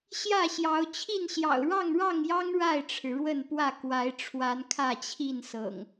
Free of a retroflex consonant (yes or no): no